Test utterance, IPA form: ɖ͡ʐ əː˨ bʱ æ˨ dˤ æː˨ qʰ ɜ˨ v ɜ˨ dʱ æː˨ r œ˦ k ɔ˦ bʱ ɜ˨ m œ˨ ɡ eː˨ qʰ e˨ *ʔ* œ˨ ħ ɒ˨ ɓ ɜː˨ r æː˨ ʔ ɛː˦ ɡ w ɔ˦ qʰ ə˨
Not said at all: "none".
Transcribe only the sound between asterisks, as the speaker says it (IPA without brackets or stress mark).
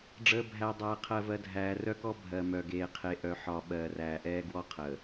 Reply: ʔ